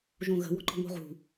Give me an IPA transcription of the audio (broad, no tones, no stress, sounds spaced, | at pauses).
ʒ õ ɣ ə̤ w ɔ̤ ǃ ɔ̤ ŋ o̤ ʁ ṳ